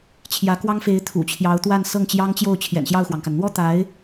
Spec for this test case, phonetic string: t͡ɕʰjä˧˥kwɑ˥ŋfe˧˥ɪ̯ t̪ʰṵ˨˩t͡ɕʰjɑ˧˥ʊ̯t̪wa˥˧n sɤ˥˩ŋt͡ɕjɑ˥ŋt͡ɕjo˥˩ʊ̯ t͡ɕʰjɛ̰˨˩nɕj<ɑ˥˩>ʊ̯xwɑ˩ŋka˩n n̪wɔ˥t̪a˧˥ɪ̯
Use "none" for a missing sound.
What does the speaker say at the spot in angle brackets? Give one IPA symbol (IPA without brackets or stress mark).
ɑ˥˩